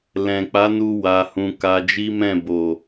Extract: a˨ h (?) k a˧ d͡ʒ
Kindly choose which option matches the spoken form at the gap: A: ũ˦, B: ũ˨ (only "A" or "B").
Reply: B